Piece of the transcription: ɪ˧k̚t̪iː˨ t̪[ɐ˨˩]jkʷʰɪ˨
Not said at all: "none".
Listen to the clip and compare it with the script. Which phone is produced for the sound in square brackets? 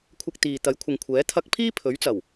ɐ˨˥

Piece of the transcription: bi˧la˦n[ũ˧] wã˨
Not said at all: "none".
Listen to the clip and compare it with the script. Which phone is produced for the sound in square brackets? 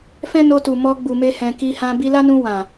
ũ˧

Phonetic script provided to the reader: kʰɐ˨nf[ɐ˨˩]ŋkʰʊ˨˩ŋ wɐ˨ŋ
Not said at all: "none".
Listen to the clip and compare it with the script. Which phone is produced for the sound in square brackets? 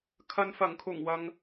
ɐ˨˩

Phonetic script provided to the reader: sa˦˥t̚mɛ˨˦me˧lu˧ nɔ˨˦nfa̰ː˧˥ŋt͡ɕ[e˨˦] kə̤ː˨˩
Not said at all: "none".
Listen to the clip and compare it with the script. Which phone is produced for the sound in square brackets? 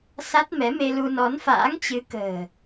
ɨ˨˦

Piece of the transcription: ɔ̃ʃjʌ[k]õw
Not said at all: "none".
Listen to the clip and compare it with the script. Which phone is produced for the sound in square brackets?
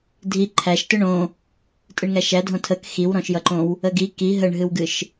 ǃ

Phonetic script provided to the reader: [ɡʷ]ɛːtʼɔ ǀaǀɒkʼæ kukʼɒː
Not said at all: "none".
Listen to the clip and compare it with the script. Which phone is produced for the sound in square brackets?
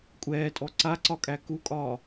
kʷʼ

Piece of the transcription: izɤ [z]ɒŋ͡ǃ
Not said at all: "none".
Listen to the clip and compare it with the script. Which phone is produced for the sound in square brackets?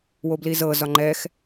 z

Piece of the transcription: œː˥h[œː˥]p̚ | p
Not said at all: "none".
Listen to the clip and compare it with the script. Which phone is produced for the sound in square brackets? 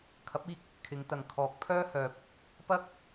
œː˨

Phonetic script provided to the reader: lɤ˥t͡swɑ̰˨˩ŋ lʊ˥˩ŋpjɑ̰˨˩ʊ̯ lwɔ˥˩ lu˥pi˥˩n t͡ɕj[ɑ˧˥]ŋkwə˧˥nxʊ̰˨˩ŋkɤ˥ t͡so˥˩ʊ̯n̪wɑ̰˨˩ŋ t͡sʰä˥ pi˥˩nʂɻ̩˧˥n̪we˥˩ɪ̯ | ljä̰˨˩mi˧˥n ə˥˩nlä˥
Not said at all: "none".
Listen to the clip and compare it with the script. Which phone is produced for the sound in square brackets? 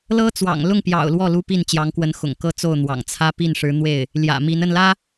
ɑ˧˥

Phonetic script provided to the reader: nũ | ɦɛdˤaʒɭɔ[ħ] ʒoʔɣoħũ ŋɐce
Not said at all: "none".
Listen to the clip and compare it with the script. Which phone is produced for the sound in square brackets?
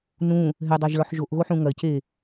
ħ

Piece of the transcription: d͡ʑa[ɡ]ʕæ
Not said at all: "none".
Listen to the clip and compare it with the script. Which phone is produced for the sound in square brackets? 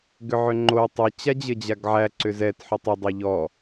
ɡ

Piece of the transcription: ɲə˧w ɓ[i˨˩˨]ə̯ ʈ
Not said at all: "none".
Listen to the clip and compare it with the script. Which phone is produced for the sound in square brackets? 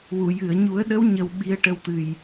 i˧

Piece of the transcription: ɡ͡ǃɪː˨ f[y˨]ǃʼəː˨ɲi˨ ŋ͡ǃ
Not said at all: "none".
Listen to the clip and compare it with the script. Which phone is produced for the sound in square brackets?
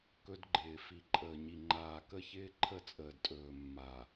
i˨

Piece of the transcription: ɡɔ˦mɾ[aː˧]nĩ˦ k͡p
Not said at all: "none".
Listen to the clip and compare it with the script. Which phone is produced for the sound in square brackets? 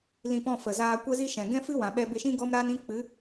aː˦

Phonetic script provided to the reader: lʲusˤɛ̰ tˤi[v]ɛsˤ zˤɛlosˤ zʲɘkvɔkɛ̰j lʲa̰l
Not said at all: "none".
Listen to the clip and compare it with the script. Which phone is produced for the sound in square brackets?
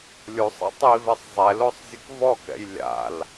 v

